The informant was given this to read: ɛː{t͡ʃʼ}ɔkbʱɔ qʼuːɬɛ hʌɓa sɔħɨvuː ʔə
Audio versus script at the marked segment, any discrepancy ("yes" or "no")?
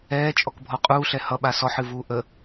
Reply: no